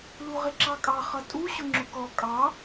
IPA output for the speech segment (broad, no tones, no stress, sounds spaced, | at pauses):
l u ʁ ɪ ǁ ɑ kʼ ɑ χ ʌ tʼ u ɕ ʊ ŋ͡ǁ ʊ k ɔ kʼ ɑ